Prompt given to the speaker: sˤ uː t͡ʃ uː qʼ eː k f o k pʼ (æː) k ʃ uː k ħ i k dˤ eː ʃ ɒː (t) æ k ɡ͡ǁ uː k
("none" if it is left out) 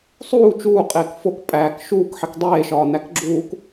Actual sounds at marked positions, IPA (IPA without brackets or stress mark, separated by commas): æː, n